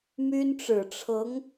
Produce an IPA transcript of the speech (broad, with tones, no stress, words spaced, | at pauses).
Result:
my˥nʈ͡ʂɻ̩˨˩ ʈ͡ʂʰɤ˧˥ŋ